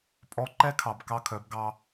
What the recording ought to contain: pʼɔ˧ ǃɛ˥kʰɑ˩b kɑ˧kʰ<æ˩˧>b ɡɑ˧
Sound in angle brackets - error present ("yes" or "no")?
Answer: yes